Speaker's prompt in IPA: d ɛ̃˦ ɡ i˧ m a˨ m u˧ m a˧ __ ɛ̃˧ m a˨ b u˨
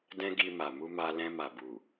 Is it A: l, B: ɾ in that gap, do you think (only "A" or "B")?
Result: A